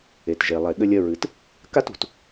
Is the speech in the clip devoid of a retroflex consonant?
yes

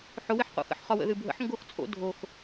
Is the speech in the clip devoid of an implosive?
yes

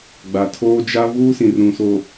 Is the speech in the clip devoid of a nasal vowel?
no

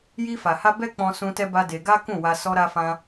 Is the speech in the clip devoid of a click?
yes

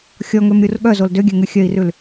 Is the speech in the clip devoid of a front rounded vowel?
no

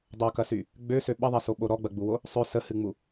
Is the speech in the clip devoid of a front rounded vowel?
no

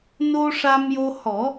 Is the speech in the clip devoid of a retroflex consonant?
no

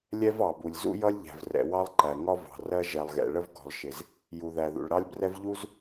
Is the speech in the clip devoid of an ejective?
yes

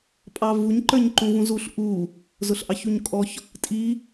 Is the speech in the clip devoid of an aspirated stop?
yes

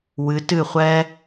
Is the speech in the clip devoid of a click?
yes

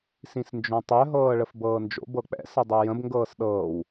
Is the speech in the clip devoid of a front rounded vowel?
no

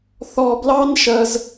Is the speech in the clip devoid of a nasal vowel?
yes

